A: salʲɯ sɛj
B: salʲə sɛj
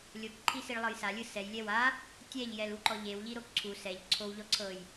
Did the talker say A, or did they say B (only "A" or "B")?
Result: A